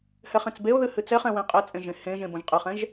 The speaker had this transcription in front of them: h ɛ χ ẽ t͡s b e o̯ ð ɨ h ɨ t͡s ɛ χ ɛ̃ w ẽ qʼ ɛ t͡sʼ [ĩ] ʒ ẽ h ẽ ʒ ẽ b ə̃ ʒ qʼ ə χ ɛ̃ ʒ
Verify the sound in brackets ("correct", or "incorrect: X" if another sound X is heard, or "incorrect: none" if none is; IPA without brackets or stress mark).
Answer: incorrect: ẽ